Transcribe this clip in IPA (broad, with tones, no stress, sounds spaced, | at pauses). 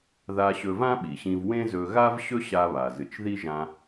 ð a˧ ɕ ɵ˧ v ã˥ ɓ i˩ ɕ ĩ˧ v w ẽ˥ z ɵ˧ ɣ a˥ v ɕ ɵ˥ ɕ a˧ β a˩ z ɨ˩ t͡ʃ ð i˥ ʒ ã˧